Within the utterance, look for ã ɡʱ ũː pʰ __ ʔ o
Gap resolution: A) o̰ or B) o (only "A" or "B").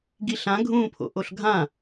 A